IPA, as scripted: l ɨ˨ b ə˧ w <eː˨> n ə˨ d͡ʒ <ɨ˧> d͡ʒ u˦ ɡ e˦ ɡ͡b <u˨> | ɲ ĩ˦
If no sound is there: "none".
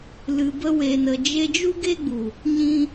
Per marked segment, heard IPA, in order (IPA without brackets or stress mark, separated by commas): e˨, e˧, u˨